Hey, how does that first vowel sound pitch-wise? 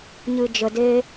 low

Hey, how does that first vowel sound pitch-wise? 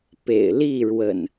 low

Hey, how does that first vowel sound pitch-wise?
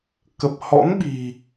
low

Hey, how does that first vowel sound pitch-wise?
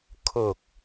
low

